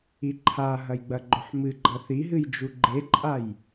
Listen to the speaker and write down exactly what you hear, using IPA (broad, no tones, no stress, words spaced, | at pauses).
iǃʰaɦɐj ɡ͡bɐɡ͡ǃɵħmɨɡ͡ǃɐ θiɦɨj d͡ʒuɡ͡ǃeǃʼaj